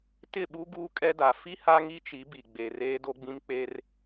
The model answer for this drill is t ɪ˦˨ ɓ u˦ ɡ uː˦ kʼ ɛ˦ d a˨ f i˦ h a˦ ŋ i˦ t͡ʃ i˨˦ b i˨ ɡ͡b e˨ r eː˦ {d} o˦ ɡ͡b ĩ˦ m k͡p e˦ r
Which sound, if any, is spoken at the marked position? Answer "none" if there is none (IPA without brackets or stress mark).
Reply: d